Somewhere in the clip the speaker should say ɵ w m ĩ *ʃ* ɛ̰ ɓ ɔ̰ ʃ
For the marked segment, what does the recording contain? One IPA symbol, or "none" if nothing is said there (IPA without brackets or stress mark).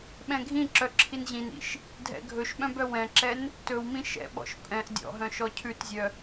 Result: ʃ